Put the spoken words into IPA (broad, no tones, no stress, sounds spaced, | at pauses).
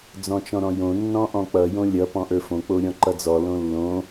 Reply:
d͡z ɔ̃ t͡ʃ ɔ̃ ɾ ɔ̃ j õ nː ɔ̃ ʔ ɔ̃ k͡p ʌ j õ lʲ ʌ p ɔ̃ ʔ ə˞ f õ k͡p o ɾʲ ɔ̃ ǃ ʌ d͡z ɔ l õ lː õ